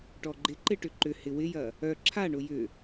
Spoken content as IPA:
ʈ ɔ ɡ͡ǃ ɪ ǃ ɪ ʈ ʏ ǃ ʏ h ɪ w ɪ j ɐ | œ ǁʰ a ɳ ʊ j ʏ

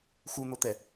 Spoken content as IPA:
x u n̪ o t̪ ɛ

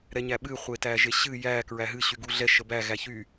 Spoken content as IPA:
ɾ ɛ ɲ æ ɓ ɨ χʷ e t æ ʒ e ɕ ɨ j æ k ɹ æ ɦ ɨ ɕ y ɡ u ɮ ɛ ʃ ə b æ ɣ æ ç y

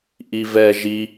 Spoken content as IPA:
ʔ i v ɛ ʒ i

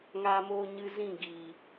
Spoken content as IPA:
ŋ aː˧ m oː˧ ɲ ɨ˧ z ĩ˦˨ ɡ iː˨

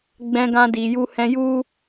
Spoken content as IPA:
ɡ͡b ɛ̃˧ ɡ ã˧ d i˨ j u˧ h ɛ̃˧ j u˦

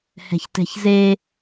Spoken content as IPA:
h ɛ̤ ç t ɛ̤ ç z e

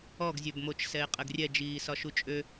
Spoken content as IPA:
ɔ ɡ zʲ ø b m o t͡ʃ s ɛ ɪ̯ qʼ ɘ ɡ rʲ ɛ d͡ʒ iː s ɒ ʃ u t͡ʃʼ ø

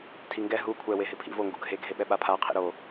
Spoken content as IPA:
tʰ i ŋ ɡ ɛ ɦ u kʷʰ ɛ w e ɦ ɪ pʰ ḭ v o ŋ ɡ ṵ ɡʱ e ɡʱ e ɓ ɛ ɓ a pʰ a qʰ ḭ ɾ o

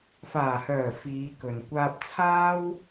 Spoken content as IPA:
f aː˨˩ h œː˨˩ f iː˨˧ k ɵ˨ n kʷ aː˧ p̚ t͡sʰ aː˥ w

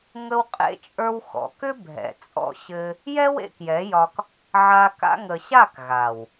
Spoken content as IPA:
ŋ ə˦ w qʼ ḛ˦ t͡ʃʼ ə˞˦ w x ɔ̰˨ k ʏ˦ bʱ ɛ̰˨ t͡sʼ ɔ̰˧ ɕ ɘ˧ | j ɛ˦ w ḛ˧ k j ɛ˨˦ j ɒ˧ k | ʕ a˧ k a̰˧ ŋ ə˨ ɕ a˦˨ k ɣ a˨ w

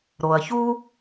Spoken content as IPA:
ɾ o˩ ɐ̯ ç u˥

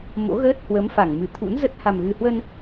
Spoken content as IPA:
m o̰˧˥ ɣ əː˦˥ t̚ h w ə˨˦ m f a˧˩ ŋ m ɨ˧˩ t̪ʰ ṵ˧˥ n z ə˦˥ t̚ h a˨˩ m ɣ ɨ˨˩ h w ə˧ n

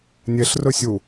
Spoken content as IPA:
nʲ e ɬ r ɵ sʲ u

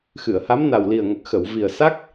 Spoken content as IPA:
x ɨ˨˩˨ ə̯ h a˧˥ m n a˨˩ w l i˨˩ ə̯ ŋ ə˨˩ k̚ x ə˨˩˨ w v i˨˩ ə̯ s a˦˥ k̚

